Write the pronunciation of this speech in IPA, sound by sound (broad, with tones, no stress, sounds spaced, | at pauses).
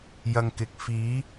j ɐ˧ ŋ k ɪ˨ k̚ f iː˨˥